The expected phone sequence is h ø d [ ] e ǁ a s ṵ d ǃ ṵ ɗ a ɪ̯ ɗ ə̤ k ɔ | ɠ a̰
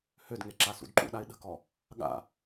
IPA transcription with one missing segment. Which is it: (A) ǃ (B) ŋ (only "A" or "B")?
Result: B